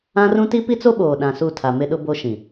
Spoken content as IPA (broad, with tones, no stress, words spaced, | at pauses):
ã˦rũ˦ ti˦pi˦t͡so˦ɓoː˨ ɗã˨su˦˨tʰa˨ mɪ˦ɗʊ˦bo˦ʃĩ˨